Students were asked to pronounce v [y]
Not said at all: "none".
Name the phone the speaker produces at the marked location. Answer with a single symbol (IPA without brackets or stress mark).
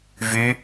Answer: y